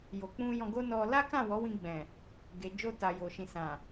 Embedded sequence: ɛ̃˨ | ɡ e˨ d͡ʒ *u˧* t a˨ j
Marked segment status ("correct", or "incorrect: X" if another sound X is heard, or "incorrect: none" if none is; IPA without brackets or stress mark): incorrect: o˧